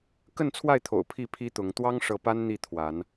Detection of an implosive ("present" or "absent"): absent